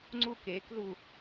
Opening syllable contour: falling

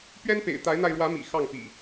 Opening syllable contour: high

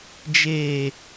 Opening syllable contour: low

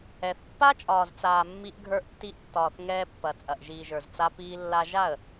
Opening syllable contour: low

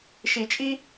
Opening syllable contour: low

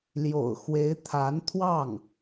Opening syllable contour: low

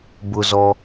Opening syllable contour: low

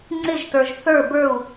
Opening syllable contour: falling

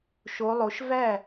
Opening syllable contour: rising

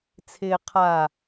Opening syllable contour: low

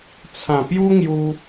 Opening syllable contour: low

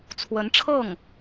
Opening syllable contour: rising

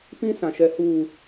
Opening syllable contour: high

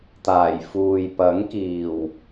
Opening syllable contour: low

